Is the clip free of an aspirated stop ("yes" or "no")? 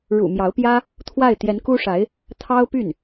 no